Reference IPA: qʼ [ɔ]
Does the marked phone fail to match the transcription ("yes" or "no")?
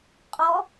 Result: no